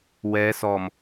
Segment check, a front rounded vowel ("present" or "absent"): absent